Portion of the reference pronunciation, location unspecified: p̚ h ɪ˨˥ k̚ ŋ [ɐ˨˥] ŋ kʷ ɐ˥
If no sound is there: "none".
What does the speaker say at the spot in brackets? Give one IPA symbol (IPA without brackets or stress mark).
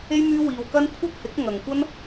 ɐ˨